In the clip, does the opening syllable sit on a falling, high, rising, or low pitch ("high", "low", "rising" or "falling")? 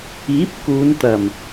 rising